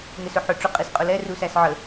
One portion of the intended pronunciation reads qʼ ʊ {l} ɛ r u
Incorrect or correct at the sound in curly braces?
correct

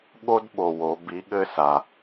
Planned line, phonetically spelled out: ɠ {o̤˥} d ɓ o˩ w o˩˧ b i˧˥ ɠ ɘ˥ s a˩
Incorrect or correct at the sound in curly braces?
incorrect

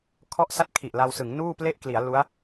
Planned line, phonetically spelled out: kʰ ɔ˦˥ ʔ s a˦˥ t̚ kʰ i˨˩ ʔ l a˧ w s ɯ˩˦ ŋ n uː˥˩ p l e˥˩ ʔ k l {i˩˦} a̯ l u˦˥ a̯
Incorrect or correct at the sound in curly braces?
correct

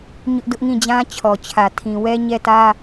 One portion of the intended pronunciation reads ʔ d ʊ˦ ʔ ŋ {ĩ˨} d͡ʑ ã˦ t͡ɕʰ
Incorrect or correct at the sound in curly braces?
incorrect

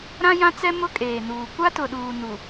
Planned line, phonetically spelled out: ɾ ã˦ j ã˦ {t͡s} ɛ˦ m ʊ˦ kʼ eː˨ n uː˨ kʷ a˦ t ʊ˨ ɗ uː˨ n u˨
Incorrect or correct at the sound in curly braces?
correct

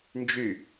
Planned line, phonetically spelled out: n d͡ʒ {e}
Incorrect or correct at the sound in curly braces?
incorrect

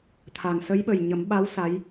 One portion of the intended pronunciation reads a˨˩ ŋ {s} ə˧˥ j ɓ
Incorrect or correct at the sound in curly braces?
correct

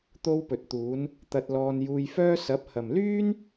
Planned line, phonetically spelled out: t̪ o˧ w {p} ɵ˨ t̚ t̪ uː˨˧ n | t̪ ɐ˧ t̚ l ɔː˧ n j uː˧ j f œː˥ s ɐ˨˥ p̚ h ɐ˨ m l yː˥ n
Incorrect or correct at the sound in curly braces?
correct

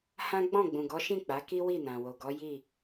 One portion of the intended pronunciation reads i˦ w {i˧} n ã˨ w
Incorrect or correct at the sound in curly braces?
incorrect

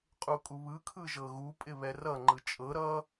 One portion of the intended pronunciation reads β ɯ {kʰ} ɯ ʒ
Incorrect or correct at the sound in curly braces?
correct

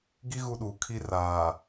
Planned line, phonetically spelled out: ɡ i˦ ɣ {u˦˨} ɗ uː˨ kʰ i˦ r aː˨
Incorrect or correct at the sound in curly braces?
correct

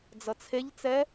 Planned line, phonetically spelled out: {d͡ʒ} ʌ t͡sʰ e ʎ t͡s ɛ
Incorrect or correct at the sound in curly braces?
incorrect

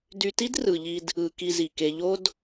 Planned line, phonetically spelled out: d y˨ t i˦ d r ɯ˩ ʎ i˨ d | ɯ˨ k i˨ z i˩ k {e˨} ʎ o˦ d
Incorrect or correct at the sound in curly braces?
correct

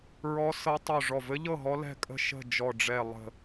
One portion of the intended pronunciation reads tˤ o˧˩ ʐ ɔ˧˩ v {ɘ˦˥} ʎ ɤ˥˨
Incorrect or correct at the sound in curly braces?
correct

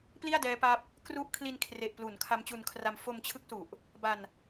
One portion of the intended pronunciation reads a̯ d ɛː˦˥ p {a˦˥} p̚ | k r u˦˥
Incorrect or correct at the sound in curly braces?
correct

